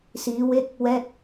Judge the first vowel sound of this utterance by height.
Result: high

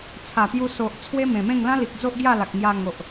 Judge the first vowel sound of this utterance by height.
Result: low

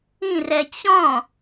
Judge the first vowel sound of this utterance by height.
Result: high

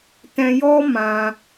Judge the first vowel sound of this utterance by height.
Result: mid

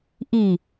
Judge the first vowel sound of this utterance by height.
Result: high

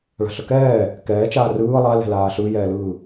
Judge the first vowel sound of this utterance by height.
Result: low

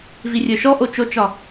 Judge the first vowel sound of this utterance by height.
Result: high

